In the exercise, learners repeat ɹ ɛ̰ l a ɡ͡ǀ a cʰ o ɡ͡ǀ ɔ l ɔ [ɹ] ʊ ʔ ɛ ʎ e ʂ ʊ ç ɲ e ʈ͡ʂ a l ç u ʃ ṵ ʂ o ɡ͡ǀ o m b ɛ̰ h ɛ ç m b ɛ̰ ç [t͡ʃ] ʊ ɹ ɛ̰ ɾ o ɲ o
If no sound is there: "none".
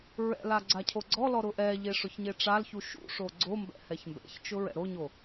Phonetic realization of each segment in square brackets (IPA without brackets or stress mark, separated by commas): ɾ, t͡ʃ